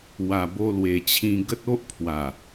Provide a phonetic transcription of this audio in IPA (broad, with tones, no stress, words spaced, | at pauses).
wa˨˩bo˧lwe˨˩t͡ɕʰĩ˧ ɡə˦t̚o˦ʔpʰwa˨˩